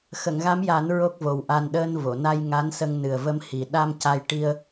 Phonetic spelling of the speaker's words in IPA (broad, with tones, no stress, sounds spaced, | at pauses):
x ə˨˩˨ ŋ ɣ a˧˥ m j a˨˩˦ n ɹ o˦˥ k̚ v o˨˩ w ʔ a˧ n ɗ əː˧ n v o˨˩˨ n a˧ j ŋ a˧˥ n s ə˧ ŋ n ɨ˨˩ ə̯ v ə˧ m h i˨˩ ɗ a˧ m c a˧ j ʈ i˧ ə̯